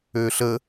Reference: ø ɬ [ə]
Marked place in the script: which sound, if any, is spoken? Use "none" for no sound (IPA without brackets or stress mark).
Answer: ə